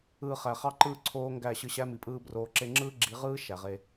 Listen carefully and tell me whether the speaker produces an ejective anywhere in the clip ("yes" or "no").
yes